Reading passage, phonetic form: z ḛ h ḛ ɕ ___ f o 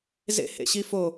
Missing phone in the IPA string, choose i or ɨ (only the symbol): i